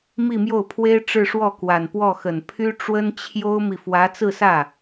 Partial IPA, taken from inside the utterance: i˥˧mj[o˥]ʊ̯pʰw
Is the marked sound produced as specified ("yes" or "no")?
no